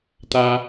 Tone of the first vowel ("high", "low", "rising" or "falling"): high